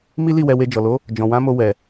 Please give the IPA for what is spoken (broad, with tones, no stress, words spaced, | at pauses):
mi˦li˦˨ wɛ˧we˧ d͡ʒɔ˨lo˨˦ | d͡ʒɔ̃˨wã˨˦ mo˧ wɛ˨